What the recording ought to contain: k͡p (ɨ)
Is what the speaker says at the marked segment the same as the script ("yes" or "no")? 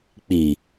no